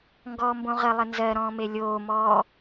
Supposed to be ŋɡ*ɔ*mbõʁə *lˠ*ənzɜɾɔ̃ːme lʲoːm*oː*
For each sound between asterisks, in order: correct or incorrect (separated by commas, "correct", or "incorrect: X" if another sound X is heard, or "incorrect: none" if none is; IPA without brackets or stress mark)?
incorrect: ɔː, correct, incorrect: ɔː